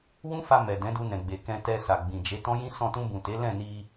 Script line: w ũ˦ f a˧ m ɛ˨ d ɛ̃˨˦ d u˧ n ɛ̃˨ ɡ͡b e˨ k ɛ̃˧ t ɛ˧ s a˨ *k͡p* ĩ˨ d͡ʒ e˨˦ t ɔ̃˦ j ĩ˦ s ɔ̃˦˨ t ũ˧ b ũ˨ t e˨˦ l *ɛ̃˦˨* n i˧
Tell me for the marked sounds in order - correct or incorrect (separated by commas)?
incorrect, correct